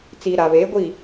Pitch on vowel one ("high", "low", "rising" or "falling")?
low